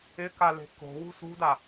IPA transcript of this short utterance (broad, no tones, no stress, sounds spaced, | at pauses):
ɪ k a l e̤ k o̤ w ṳ s ṳ d a